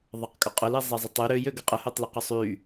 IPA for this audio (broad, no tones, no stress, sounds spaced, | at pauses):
ðˤ ə q kʼ ʊ qʼ ʊ l i zˤ e zˤ ə tˤ y ɾ ø j ø ɡ ə qʼ ə h ø tˤ l ə q ʊ sˤ y